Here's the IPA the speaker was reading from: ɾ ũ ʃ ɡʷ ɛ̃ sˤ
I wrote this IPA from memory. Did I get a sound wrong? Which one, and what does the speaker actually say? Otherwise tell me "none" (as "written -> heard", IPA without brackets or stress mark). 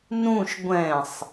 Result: ɾ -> n